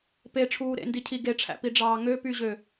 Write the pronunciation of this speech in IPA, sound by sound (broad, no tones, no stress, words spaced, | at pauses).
peʈ͡ʂʰuː ɾḛndicʰi ɡeʈ͡ʂʰæ̰piɖ͡ʐɑː ŋøpyʑø